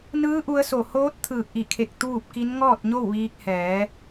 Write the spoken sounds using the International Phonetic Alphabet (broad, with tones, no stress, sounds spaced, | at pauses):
n ɯː˧˥ ʔ u˧ ə̯ s o˧˩ h oː˧˥ t̚ t̪ʰ ɯː˧˩ k̚ ʔ i˧˩ kʰ e˧˩ k̚ t̪ uː˥˨ p̚ k i˧˥ n ŋ ɔː˥˨ t̚ ɲ o˥˨ w ʋ iː˧ k̚ h ɛː˩˧